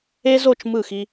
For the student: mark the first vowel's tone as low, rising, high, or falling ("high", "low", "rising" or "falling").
high